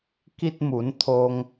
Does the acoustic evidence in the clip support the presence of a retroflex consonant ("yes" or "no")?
no